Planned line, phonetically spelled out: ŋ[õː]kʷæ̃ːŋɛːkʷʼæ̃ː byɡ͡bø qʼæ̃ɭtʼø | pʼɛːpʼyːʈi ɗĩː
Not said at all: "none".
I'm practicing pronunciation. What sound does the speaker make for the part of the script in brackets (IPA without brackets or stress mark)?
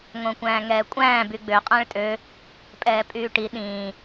õ